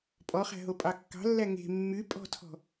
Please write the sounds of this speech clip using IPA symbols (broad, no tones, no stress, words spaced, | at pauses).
pʼɔχæ̤ɦopʼɑ kːɑ̤lːæ ŋe̤ mːy pʼɔ̤tʰɔ̤